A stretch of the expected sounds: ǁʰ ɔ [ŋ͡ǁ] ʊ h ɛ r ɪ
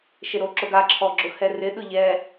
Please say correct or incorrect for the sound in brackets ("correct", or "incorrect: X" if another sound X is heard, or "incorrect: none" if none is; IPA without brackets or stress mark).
incorrect: ɡ͡ǁ